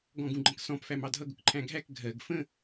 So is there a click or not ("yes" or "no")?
yes